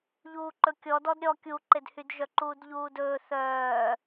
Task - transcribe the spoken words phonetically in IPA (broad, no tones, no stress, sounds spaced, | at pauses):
ʎ uː ǃ ɵ kʲ ɔ d ɔ d ɾʲ ɔ kʲ u ǃ e d h y d ʒ œ ǃ uː d ʎ uː d ɵː θ œː